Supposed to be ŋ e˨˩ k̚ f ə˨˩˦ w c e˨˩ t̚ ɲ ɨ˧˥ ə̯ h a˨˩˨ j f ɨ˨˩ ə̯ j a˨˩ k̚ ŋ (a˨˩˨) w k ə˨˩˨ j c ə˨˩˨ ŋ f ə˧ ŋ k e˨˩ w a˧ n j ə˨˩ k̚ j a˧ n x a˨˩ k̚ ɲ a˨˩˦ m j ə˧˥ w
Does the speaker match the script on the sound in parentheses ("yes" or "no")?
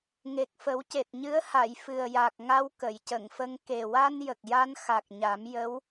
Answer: no